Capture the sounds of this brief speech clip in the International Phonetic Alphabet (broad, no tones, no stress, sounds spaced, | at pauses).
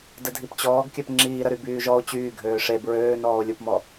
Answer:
d ə dʱ i p t͡ɕ ɔː ɡ kʲ œ p ŋ͡ǁ iː ɾ ə ɾ y b yː ʒ ɔ o̯ t͡ɕ yː ɡʱ øː ʂ e b ɹ øː n ɔː o̯ lʲ u p m ɔ